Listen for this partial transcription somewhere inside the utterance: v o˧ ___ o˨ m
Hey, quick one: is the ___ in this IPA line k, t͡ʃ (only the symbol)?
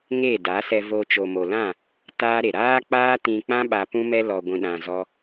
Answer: t͡ʃ